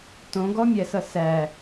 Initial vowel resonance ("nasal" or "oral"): nasal